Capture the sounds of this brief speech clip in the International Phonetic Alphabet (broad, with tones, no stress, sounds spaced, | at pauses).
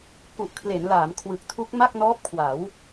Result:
k u˨˩ ʔ kʰ l e˩˦ n l aː˩˦ m kʰ w ɯ˨˩ k̚ tʰ u˦˥ k̚ m a˥˩ k̚ n ɔː˦˥ p̚ kʰ w a˩˦ w